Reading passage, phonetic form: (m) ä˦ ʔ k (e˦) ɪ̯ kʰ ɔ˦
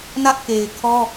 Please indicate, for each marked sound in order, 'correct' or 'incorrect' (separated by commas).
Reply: incorrect, incorrect